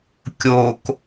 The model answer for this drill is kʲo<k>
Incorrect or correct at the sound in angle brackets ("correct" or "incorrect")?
correct